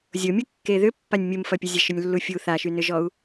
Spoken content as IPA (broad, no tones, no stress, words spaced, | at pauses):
zʲomʲukːe ðʏpːanʲ mʲumfɐpʲəzʲɐ ʃʏnʲlːufʲu θaʃynʏʒɔu̯